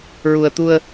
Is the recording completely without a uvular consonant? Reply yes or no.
yes